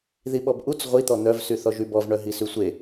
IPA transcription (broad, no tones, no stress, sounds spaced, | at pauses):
ð i ɓ ɔ b ʔ u t͡s ʁʷ i t̪ ɔ n̪ œ v s y θ ɔ ʒ y b ɔ v ɳ œ ɦ i s y sʷ e